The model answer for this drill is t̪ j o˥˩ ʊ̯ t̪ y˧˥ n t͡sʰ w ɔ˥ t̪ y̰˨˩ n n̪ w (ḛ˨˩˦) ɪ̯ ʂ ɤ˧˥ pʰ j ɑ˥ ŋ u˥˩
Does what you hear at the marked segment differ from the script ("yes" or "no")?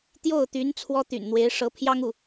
yes